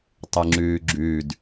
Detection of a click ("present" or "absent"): present